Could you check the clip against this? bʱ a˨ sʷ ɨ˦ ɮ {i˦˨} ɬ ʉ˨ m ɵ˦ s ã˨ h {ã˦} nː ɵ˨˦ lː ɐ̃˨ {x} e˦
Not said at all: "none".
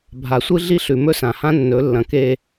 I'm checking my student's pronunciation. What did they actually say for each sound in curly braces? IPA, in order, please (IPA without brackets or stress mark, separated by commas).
i˦, ã˦, k